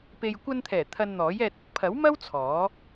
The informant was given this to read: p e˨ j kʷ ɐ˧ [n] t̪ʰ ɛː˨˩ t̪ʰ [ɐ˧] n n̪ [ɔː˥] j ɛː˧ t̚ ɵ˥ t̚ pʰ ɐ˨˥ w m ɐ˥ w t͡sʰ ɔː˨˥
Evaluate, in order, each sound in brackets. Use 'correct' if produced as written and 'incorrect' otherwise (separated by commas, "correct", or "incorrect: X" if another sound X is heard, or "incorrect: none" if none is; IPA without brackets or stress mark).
correct, correct, incorrect: ɔː˨˥